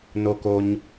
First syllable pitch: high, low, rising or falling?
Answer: low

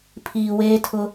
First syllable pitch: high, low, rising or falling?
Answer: low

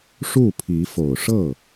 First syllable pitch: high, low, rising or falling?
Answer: falling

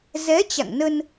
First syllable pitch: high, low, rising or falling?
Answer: rising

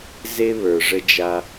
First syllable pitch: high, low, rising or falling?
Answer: high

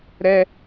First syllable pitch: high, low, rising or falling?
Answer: high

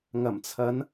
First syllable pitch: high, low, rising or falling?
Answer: low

